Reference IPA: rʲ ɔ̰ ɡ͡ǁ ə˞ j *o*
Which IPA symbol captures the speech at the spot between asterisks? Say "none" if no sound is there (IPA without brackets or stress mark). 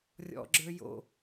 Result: o̰